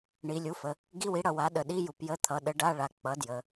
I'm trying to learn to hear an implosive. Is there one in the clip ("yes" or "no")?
yes